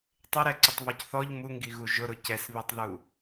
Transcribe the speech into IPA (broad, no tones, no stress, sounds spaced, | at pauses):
tˤ ɪ ɾ ɛ ǀ ɪ tˤ β ɔ c θ ɔ ʎ m u ŋ ɡ i ɣ u ʒ ʊ ɾ ʊ c ɛ s β i tˤ ð u